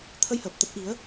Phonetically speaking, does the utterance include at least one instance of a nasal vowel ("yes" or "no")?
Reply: no